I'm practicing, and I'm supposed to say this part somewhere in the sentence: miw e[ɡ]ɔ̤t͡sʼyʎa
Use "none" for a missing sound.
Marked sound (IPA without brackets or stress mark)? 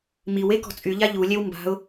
k